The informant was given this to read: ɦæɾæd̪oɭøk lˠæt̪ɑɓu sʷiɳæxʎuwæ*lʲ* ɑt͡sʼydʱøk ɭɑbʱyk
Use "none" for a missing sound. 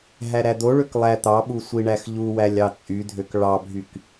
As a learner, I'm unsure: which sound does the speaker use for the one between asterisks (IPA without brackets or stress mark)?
lʲ